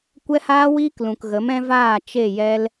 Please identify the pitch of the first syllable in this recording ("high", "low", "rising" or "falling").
high